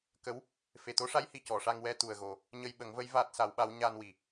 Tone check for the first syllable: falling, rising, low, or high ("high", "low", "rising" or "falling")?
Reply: rising